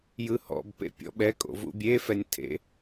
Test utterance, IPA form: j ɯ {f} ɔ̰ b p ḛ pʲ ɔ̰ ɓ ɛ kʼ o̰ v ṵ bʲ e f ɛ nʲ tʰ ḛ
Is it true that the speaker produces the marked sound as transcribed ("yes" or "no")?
no